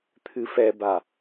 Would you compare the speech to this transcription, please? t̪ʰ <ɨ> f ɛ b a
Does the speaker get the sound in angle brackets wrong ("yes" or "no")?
no